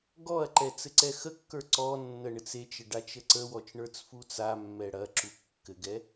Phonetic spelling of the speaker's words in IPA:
ɡ ɔ ɐ̯ ǃ ɛ t͡s ɘ ǀ ɛ x ə kː ə˞ ǀ ɔ nː ə ɳ ɘ t͡s e t͡ʃ ə ɖ a t͡ʃ ə ǀ ə w ɔ t͡ʃ ɳ ə˞ t͡s f u t͡s a mː ɛ ɽ ɐ ǁ u kː ɘ ɡ ɛ

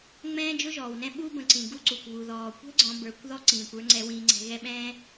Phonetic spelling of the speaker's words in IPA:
ŋ͡m ɛ̃ː˥ d͡ʒ ʊ˥ ʒ ɔː˩ w n ɛ̃˦ ɓ u˦ b ə̃˨ ǀ ĩ˩ ɡ u˥ ǀ u˩ kʷ β u˩ ð ɔː˩ kʷ ɛ̤˥ ɡ͡ǀ ɔ̃˨ b ə˞˨ kʷ ð ɔ˥ ǀ ĩː˩ kʷ ə˞˦ ŋ͡ǀ ɛ˨ w ĩː˨ ŋ͡ǀ ɛ̤˨ ɣ ɛ˦ ɓ ɛ̃ː˥

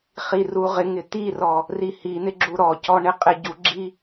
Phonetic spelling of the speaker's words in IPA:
χ i r u ʁ ɪ ŋ ɪ t̪ i r ɔ | r i h i n̪ ɪ ɡ͡ǁ u ɾ ɔ c ɔ ɳ ɪ qʼ ɪ ɟ u ɡ͡ǁ i

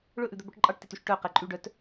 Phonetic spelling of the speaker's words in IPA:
ɭ ɵ ʔ ʉ d̪ œ b œ ʈ ǃʼ ɑ ʈ t i t y ʃ ʈ œ q ɛ ǃʼ y ɖ œ t

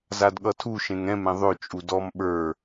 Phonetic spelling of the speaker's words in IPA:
z a d ɠ ʌ tʰ u ʃ ẽ ŋ ɛ̃ m ɛ̃ ðˤ ø t͡ʃʼ u d ɔ m ɓ ə˞

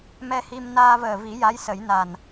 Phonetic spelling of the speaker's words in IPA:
m ɛ˧ h i˧ m n aː˧ v əː˨˩ v i˨˩˦ j a˧˥ j s ə˨˩˦ j n a˨˩ n

